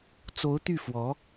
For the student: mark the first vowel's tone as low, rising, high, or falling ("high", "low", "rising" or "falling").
rising